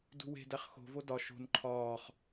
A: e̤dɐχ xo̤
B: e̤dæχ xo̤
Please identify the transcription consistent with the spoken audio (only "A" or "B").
B